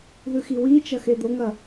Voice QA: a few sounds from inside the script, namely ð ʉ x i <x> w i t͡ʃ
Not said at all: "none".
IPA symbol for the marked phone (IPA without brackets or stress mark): none